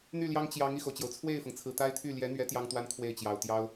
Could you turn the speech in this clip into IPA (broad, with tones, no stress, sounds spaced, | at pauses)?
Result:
n̪ y˥˩ l j ɑ˥ ŋ t͡ɕ j ɑ˧˥ ŋ i˥˩ x o˩ ʊ̯ t͡ɕ j o˩ ʊ̯ t͡sʰ w e˥˩ ɪ̯ f ɤ˩ ŋ t͡sʰ ɹ̩˨˩ t̪ a˥ ɪ̯ t̪ʰ y˥˩ l j ɛ˧˥ n̪ ɥ ɛ˧˥ t̪ j ɑ˥ ŋ t̪ w a˥ n kʰ w e˥˩ ɪ̯ t͡ɕ j ɑ˨˩ ʊ̯ t̪ j ɑ˥ ʊ̯